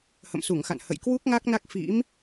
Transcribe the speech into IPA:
h ə̰˧˨ m s u˧˩ ŋ x a̰˧˨ n h ə̰˧˨ j k w u˦˥ k̚ ŋ a˦˥ k̚ n a˦˥ k̚ f ḭ˧˥ m

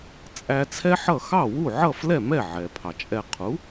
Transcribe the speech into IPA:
t͡sʼ æ˧ t͡sʰ ɛ˥ ħ ʌ˥˩ x ɑ˥˩ w u˥˩ ʕ ʌ˥˩ f l ɛ˥˩ m ɛ˥˩ ʕ ɛ˩ pʰ ɑ˩ t͡ʃʼ ɛ˧ qʰ u˩˥

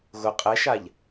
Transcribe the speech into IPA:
ɣ ʊ qʼ ɛ ʃ a ʎ

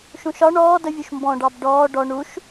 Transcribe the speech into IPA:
ʃ ũ ʃ ɒ ɳ ɔː d ə vʲ u ʃ m b ɔ̃ ɖ ɑ b ɖ ɔː ɖ ɔ ɳ u ʃ

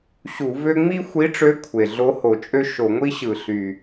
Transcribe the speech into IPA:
ɕ u˧˩˧ v ø˥ ŋ͡m i˥ xʷ i˧˥ ʈ͡ʂ ø˧˥ kʷʰ e˩ ɮ o˧˥ h o˧˩˧ t͡ʃʼ ø˥ ʃ o˧˩˧ ŋʷ i˥ ɕ ɯ˧˩˧ ɬ y˩

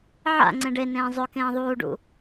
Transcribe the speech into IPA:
ʕ a̰ ŋ͡ǀ ẽ ɖ e n ẽː zˤ ɵ k ẽː ðˤ uː ɖ ṵ

